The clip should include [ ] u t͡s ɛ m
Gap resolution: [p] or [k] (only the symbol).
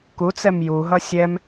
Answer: k